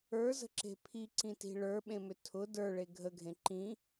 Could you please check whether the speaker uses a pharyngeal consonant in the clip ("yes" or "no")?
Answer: no